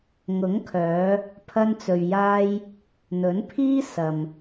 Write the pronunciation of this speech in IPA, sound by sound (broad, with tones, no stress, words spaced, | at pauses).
ŋʊ˨˥ŋkʰœː˨˧ | pʰɐ˧nt͡sɵ˨ɥjaː˧j | n̪ɵ˨˥npʰiː˥sɐ˨m